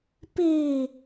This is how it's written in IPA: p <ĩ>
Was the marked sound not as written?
yes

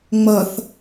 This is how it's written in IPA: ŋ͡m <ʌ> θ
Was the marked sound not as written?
no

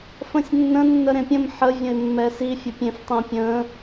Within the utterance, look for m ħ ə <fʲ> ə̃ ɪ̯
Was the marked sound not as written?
yes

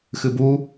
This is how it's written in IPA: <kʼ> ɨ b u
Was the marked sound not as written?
yes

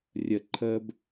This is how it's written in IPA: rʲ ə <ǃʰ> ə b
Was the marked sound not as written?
no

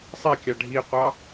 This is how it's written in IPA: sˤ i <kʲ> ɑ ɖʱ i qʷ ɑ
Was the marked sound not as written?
no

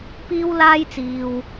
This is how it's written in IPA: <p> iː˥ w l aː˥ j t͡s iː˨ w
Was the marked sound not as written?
no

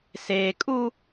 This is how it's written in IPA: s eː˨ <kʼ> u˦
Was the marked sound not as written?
no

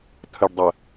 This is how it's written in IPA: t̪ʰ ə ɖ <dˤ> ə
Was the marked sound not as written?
no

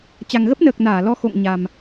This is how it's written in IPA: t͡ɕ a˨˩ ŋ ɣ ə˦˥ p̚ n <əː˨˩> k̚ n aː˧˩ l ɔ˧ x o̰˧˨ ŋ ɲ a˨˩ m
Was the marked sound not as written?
no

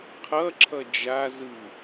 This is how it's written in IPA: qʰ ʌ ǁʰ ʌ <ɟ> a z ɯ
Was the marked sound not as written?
yes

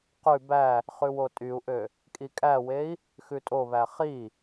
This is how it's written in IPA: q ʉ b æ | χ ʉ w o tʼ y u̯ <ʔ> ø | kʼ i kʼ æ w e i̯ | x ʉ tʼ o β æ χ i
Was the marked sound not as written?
no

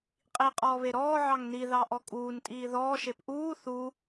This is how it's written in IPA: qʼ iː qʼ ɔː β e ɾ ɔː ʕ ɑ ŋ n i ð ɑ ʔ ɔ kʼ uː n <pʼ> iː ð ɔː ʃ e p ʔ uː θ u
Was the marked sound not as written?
yes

